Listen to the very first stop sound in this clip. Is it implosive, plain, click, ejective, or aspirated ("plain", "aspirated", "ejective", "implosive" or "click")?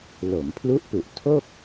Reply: aspirated